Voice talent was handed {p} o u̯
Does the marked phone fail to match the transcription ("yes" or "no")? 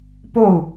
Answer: no